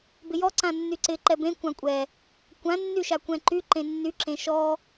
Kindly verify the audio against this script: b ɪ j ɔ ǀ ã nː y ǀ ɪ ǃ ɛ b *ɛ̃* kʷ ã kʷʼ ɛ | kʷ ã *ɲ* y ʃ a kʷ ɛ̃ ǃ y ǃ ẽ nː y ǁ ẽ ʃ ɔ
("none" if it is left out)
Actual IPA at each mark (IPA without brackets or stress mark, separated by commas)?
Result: ẽ, nː